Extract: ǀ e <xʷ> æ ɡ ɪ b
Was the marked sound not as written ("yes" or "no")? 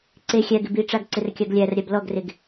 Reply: yes